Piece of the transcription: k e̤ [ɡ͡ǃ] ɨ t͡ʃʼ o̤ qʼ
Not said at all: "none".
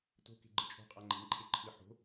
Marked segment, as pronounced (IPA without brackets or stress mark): ɡ͡ǃ